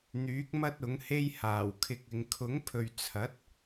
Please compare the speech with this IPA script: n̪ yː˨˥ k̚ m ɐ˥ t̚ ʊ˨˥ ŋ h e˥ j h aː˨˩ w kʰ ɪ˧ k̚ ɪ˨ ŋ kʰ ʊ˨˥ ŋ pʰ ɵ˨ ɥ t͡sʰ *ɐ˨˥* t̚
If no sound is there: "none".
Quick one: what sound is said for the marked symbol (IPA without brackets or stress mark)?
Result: ɐ˨˥